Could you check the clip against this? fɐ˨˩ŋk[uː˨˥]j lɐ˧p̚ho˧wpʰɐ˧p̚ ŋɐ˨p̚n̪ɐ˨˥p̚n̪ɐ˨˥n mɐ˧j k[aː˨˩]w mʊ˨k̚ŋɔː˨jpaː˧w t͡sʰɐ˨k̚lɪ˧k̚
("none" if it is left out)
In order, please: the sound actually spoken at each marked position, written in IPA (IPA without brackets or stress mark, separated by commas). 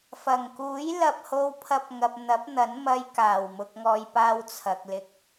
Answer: uː˨˥, aː˨˩